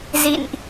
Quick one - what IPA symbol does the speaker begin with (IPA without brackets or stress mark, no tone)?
z